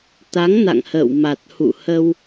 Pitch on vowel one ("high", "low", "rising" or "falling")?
rising